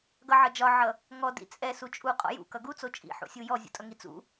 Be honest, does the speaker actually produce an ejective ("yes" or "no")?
yes